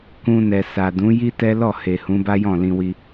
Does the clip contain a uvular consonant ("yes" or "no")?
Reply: no